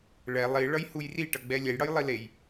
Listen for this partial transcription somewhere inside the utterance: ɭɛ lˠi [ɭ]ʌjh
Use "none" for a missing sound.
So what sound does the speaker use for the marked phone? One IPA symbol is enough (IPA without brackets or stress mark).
ɭ